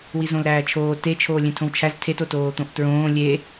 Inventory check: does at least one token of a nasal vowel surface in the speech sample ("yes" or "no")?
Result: yes